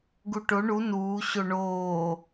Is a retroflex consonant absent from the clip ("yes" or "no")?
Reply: no